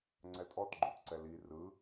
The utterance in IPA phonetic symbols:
ŋ͡ǀ ɛ tʼ ɔ t ɡ͡ǃ u t ǀ ɛ l i r ɯ

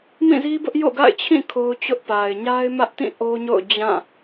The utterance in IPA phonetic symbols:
m ĩ˦˨ z i˦ b ʊ˦ ʔ j o̰˦˨ ɡ a̰˦˨ ɪ̯ t͡ɕʰ ĩ˦˨ kʰ o˦ ʊ̯ t͡ɕ ʊ˦ ʔ p a˨ ɪ̯ ɲ a˦ ɪ̯ m ä˦ ʔ t ĩ˦˨ ʔ o˦ ɲ o̰˦˨ ʊ̯ d͡ʑ ã˦˨

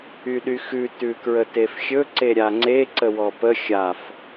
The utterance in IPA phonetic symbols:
y ɗ y x ʉ t ʉ k ɹ ə t e f xʲ ɵ ǀ e ɾʲ a ŋ͡ǀ e ǀ ə w ɔ p ə xʲ a f

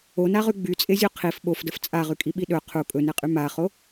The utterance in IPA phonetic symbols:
o n a ʁ y ɡ͡b y t͡sʼ e zʲ u qʰ i f ɓ o f d ə f t͡sʼ a ʁ y kʼ i ɓ i ɗ ɵ qʰ u kʼ ɵ n e qʼ y m a χ o

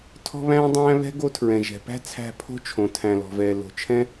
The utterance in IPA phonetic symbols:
tʰ ɔ̤˧ β æ̃ː˧ dˤ æ̃ː˧ β ɛ̤˦ ɡ o˧ tʰ ɹ ɛ̃˨ ʒ ɛ̤˨ p æ̤˦ t͡sʰ æ̤˧ pʰ o̤˦ t͡ʃʰ õ˨ tʰ æ̃˨ l ɔ̤˨ v ɛː˨ l o̤˨ t͡ʃʰ ɛ̃˦

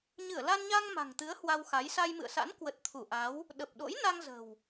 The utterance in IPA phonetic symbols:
ɲ ɨ˧˩ ə̯ l a˧ n ɲ a˧ ŋ m a̤˨˩ ŋ t̪ ɨ˨˦ ə̯ h w a˧ w x a˨˦ j s a˧ j m ɨ̰˧˨ ə̯ s a̰˧˥ n k w ə˨˩ t̚ t̪ʰ u˧˩ ʔ a˨˦ w | ɗ ə˨˩ p̚ ɗ o̰˧˥ j n a˧ ŋ z ə̤˨˩ w

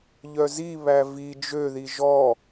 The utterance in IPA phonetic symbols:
ʎ œ z i β æ v i d͡ʒ ø ð i ʒ ɔ

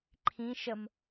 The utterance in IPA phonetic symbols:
ǃʰ ĩ ʃ ə m

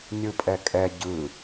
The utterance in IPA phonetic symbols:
nʲ ɯ pʼ ɛ kʼ ɛ ɟ ɯ

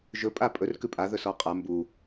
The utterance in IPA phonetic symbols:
ʒ ɵ pʼ a pʼ ɵ r k ʉ pʼ a ð ɵ s ɔ qʼ a m b u

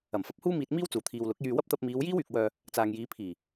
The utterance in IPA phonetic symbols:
ɐ˨˩ m f ɐ˨˥ p̚ h uː˥ m iː˧ t̚ m iː˥ w t͡s uː˨˩ t̪ʰ iː˨ w l ʊ˨˥ k̚ j yː˧ w ɐ˥ p̚ t̪ ɐ˧ p̚ m iː˨˧ w j iː˥ w yː˨ k̚ w œː˧ | t͡s aː˨ ŋ j iː˨˧ pʰ iː˨˩

